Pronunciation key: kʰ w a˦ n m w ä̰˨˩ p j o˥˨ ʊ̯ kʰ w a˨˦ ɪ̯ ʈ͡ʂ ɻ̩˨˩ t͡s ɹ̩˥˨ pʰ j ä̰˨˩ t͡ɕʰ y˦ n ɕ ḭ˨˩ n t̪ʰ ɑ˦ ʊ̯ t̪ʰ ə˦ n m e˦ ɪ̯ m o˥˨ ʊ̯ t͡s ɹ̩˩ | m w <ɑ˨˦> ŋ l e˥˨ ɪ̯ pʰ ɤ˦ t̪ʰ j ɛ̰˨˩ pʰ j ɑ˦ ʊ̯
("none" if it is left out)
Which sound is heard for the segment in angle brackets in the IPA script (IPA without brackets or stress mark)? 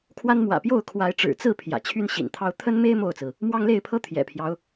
ɑ˦